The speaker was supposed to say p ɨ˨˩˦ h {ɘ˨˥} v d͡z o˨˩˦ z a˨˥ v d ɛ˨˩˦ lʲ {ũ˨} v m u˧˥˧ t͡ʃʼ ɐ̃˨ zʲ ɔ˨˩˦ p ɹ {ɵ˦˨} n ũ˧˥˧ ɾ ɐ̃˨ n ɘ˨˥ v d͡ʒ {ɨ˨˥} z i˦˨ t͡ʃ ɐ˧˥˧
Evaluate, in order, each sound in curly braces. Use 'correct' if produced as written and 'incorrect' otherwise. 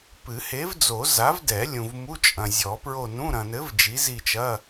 incorrect: e˨˥, correct, incorrect: o˦˨, incorrect: i˨˥

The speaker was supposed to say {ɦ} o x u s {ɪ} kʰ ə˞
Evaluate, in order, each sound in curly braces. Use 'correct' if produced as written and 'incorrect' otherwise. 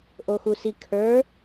incorrect: ʔ, incorrect: i

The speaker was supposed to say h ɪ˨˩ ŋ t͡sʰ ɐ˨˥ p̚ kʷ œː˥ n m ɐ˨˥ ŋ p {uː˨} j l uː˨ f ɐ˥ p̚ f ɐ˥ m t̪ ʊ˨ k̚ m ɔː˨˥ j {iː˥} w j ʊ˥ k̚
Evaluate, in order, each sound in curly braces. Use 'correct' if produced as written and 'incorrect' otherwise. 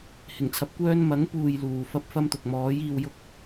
correct, incorrect: iː˧

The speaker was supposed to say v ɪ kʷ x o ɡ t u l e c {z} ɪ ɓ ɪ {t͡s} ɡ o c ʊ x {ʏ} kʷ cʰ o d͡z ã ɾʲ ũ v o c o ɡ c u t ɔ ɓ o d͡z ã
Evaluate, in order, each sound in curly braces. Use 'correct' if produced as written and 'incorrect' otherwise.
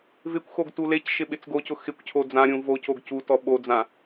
incorrect: ʃ, correct, incorrect: ɪ

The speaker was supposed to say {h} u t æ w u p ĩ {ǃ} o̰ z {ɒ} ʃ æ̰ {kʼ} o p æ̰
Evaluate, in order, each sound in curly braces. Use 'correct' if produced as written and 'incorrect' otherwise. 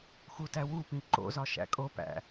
incorrect: x, correct, correct, correct

